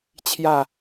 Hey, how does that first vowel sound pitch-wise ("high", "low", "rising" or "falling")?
falling